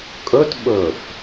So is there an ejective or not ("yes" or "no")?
yes